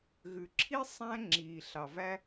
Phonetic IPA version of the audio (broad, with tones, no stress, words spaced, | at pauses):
ɣʉ˨ǁʰi˦ sˤæ̃˦ ŋ͡ǁiː˨ɬɑ˨væ˦